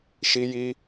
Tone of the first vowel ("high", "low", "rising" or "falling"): high